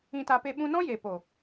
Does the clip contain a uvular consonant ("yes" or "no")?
no